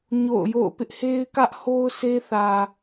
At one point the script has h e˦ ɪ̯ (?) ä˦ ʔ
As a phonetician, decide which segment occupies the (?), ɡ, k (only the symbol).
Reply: k